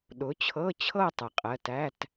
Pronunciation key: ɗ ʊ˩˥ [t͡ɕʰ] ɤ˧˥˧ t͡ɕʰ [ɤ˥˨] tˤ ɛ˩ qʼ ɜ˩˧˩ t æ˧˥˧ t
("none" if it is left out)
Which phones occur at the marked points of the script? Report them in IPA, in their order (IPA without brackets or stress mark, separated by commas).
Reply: t͡ɕʰ, ɤ˥˨